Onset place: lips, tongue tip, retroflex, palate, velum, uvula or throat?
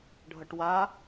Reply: retroflex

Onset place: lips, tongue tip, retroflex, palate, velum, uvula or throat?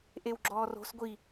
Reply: throat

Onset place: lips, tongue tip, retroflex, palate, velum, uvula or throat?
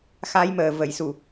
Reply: velum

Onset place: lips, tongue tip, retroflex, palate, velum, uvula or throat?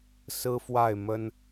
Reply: tongue tip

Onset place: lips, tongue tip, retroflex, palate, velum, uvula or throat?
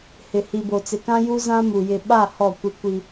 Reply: throat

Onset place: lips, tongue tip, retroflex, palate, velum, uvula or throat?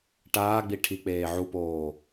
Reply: retroflex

